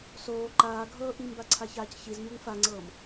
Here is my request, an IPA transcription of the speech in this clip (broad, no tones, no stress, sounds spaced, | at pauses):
s oː ǃ aː ɡʱ ɤː ʔ i m b a ǀʰ a ç aː c ç i z ɲ o ŋ f a ŋ͡ǀ ɤː m